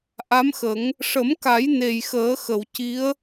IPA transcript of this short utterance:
ʔ a˧˥ m x ə˨˩˦ ŋ | ʂ ə˨˩˦ m k a˨˩˦ j n e˨˩ j x əː˨˩˦ x ə˨˩˨ w c i˧˥ ə̯

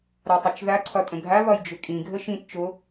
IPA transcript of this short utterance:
ɾ a tˤ e t͡ʃ ð a ǀʰ ɒ tʼ ə̃ ɡʱ a β ɒ j d͡ʒ ʏ kʼ ĩ ɡʱ ə ʃ ĩ t t͡ʃ o

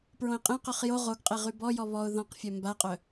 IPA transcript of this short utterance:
p ɹ õ ɪ̯ qʼ ẽ q œ χ j o ʁ o ɡ qʼ e ʁ y b ɔ j ɔ β ɔ ʊ̯ ð ɔ̃ q fʲ œ m b a qʼ œ

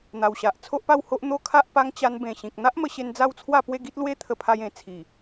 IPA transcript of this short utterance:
n̪ a˨˩ w ɕ a˨ ʔ t͡sʰ o˦ ʔ p a˥˧ w h o˦ ʔ n̪ o˦ kʰ a˦ ʔ p a˦ ŋ t͡ɕ a˧ n b ẽ˨˩ ɕ ĩ˨ k̚ n̪ a˦ ʔ m ə˧ ɕ e˧ n d͡z a˦ w t͡sʰ w a˥˧ p w e˥˧ ɡ i˦ t̚ l w e˦ t̪ʰ ə˧ pʰ a˧ j ẽ˨˩ t͡sʰ i˨˩

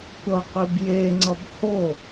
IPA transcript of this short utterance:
tʷ ʌ qʷ i b j e ŋ͡ǀ ʌ b h o

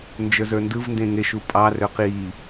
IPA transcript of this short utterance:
n d͡ʒ ə˞ z ə˞ n d ɯ v n d ẽ ŋ e ʃ u pʼ ɑ r ø q i

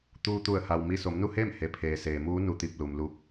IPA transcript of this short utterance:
t̪ uː˧ t̪ u˧˩ ə̯ h a˩ w m i˧˩ s o˩˧ m n u˥˨ h eː˥˨ m h e˩ pʰ eː˩ s eː˩ m uː˧˥ n u˧ t̪ i˧˩ p̚ l u˩ m l uː˧ k̚

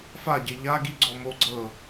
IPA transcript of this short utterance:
f a ɟ e ʎ a ɡ i ɡ͡ǀ ɔ m o ɡ͡ǀ ɤ

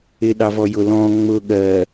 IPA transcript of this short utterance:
ɪ ɗ ɑ v ɔ j ʊ l ɔ̃ ŋ͡m ʊ ɠ ɜ

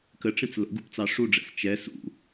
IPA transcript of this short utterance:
k ə ʈ͡ʂ ĩ t͡s l ə̰ ɡ u p t͡s ɑ ʂ u ɖ͡ʐ ɛ̰ s t͡ʃ ɛ s ṵ

